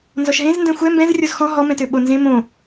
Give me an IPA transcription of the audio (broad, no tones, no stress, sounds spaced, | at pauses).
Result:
n z ɔ ʃ ɦ ẽ z n d ɛ̃ xʷ ɛ m b ɛ̃ z rʲ o z x ɔ̃ ɦ ɔ m ɛ̃ t ø ɓ o n z ẽ m õ